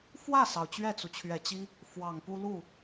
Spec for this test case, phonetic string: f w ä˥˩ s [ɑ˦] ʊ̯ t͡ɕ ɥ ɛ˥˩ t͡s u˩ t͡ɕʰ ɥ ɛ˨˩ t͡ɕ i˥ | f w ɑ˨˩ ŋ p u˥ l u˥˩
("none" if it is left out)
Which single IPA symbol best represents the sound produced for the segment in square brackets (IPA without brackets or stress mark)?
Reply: ɑ˩